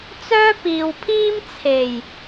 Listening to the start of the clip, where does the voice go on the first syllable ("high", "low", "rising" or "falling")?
high